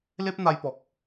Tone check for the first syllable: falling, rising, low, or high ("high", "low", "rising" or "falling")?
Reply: high